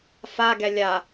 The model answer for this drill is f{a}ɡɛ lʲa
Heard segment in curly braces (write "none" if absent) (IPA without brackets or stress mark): a